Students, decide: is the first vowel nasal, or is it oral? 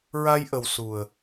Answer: oral